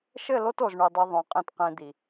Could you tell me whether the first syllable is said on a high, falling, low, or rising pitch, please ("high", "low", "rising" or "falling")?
falling